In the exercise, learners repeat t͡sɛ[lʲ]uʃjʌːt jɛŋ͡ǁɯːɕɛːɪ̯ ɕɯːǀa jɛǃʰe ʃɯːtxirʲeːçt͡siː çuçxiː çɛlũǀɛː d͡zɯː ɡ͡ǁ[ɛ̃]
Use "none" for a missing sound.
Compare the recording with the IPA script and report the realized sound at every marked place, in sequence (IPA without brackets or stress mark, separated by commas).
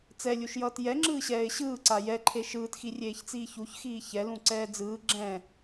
lʲ, ɛ̃